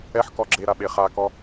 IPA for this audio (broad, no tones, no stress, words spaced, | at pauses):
ɛħkɔ ɡ͡ǁeɾaɓe χakɔ